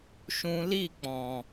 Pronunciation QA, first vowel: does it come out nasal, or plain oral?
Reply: nasal